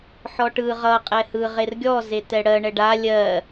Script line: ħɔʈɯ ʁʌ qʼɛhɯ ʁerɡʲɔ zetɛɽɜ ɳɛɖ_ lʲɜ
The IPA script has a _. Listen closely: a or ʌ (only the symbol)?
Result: a